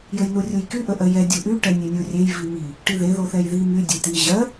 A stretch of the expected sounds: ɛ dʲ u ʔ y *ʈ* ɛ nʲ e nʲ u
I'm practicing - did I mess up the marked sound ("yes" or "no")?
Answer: no